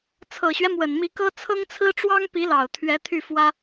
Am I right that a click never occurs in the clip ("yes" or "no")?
yes